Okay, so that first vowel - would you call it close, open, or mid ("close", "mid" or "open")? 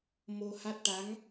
mid